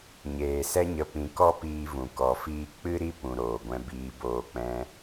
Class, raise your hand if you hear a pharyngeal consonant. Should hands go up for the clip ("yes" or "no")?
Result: no